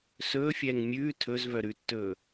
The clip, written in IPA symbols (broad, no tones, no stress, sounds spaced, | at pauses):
s ɵː fʲ ɛː ŋ mʲ ʉː tʰ ɵ z v œ ɾ ʉ tː ɵː